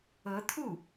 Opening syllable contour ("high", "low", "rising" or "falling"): rising